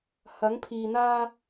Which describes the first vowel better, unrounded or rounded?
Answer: unrounded